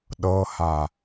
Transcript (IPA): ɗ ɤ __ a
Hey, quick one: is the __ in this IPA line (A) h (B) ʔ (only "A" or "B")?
A